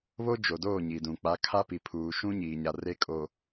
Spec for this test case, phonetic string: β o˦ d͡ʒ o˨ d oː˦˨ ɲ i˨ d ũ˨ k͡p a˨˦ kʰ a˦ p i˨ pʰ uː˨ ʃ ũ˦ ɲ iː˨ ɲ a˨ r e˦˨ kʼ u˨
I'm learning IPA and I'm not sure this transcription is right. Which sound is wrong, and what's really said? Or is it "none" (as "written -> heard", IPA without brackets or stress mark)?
u˨ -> o˨